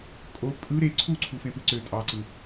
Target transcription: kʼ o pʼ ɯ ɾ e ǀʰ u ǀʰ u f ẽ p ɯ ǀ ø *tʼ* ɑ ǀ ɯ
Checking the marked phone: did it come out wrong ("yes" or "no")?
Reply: no